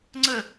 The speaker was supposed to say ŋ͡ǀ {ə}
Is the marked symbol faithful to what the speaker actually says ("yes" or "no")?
yes